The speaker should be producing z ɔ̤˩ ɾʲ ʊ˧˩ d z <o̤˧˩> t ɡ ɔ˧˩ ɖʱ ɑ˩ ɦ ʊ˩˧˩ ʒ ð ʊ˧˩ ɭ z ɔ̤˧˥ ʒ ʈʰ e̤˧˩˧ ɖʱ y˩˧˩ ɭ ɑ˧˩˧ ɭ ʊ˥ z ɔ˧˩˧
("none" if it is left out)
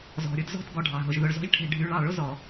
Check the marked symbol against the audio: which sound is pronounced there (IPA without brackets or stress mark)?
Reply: ɔ̤˧˩